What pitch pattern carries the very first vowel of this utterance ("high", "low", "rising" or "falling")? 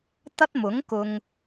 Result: high